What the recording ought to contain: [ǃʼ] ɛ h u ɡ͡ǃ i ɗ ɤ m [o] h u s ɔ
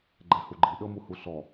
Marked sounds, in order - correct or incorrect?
incorrect: ɡ͡ǃ, incorrect: u

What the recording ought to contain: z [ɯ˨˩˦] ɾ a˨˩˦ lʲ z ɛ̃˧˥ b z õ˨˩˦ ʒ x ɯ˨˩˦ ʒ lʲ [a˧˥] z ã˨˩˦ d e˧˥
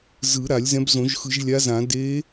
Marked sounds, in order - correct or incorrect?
correct, correct

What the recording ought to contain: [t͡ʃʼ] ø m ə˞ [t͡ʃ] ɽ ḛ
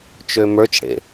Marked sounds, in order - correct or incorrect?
incorrect: t͡ʃ, correct

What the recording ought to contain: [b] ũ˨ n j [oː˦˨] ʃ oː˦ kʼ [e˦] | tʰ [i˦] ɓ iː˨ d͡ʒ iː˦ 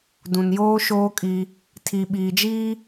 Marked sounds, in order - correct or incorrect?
incorrect: d, incorrect: oː˦, incorrect: i˦, incorrect: i˨

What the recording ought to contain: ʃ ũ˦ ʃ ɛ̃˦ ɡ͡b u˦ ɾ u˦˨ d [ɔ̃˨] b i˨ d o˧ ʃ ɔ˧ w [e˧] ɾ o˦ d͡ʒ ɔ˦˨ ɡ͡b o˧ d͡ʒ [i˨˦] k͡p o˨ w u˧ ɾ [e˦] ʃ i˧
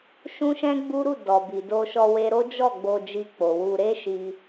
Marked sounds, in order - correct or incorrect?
incorrect: ɔ˨, incorrect: e˦, incorrect: i˧, correct

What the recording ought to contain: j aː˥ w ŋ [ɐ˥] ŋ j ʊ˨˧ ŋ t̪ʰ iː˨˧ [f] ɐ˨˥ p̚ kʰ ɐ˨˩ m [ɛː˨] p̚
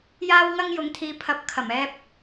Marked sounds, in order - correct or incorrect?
correct, incorrect: pʰ, incorrect: ɛː˧

